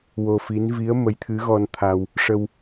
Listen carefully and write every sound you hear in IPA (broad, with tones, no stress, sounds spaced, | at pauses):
w o˧ f i˧˥ n v i˧˥ ə̯ m ə˧˥ j t̪ʰ ɨ˧˥ ɣ ɔ˧ n t̪ʰ a˧ w | ʂ ə˧ w